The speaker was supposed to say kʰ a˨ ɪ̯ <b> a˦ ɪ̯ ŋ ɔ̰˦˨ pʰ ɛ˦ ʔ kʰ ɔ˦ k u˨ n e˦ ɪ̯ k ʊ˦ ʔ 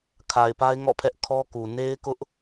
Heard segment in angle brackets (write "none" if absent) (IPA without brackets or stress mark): p